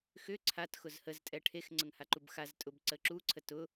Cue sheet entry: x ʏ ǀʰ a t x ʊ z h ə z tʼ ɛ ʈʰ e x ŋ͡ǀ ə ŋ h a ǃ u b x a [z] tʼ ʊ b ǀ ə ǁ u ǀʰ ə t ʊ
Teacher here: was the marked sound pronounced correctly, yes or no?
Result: yes